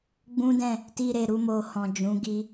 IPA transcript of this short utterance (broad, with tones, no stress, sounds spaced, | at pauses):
ɡ͡b ũ˦ d ɛ̃˦˨ | t i˧ ɾ e˨ ɾ u˧ m o˧ h ɔ̃˨ d͡ʒ ũ˨˦ ɡ i˧